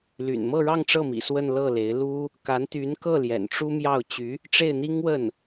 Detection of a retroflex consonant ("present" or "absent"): present